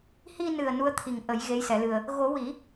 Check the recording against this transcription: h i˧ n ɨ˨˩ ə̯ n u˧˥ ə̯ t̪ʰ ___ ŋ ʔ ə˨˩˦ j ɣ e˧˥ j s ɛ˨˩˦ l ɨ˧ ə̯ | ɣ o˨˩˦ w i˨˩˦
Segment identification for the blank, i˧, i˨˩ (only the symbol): i˨˩